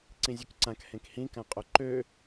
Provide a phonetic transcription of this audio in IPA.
ǀ ĩ zʲ ø k ǀ ã k h ẽ k h ĩ k ã qʼ o ǃ ø

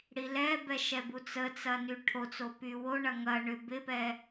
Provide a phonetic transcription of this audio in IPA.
ɽ i l ɛ b ɛ ʃ ɛ b u t͡s ə t͡s ɐ n y ʈʰ o t͡s o p y w o ɳ ɐ ŋ ɐ ɳ ʏ b ɪ p ɛ

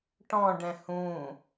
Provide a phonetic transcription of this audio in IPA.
ʈ ɔ̃ ɖ ɛ̃ h ũ

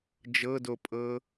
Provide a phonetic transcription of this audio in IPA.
d͡ʒ ɤ d o pʼ ɤ

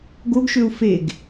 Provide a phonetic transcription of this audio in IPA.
ɡ o ɡ ʃ ø u̯ f e ɡ

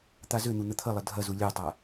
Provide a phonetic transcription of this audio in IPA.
t̪ a z ø n̪ u n̪ ə t̪ʰ ə lˠ ə dʱ ɐ z u lʲ ɜ tˤ a

